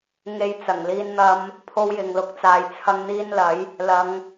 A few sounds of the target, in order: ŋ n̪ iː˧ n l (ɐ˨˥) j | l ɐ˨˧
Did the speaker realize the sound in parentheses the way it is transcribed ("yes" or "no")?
yes